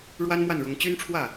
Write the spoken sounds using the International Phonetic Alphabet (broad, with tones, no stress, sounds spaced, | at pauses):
ɻ w a˥ n m w a˥˩ n ɻ ʊ˧˥ ŋ t͡ɕ y˥ n ʈ͡ʂʰ w ä˥˩